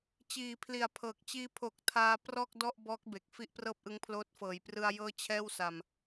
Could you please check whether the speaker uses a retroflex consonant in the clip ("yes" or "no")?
no